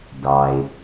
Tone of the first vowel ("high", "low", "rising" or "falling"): low